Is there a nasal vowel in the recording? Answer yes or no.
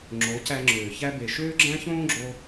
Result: yes